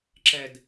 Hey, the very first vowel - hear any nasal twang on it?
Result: no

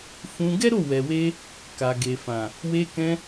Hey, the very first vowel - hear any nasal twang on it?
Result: yes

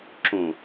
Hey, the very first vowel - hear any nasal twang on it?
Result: yes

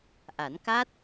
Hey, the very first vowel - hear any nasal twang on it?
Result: no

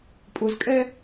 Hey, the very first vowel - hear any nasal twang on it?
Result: no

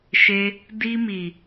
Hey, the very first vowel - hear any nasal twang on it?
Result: no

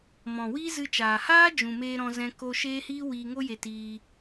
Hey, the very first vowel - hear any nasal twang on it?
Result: yes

